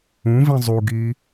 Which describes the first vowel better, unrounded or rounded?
rounded